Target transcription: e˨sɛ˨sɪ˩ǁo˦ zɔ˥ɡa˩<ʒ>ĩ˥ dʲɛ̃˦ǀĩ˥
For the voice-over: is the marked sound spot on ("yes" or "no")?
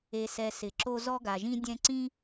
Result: yes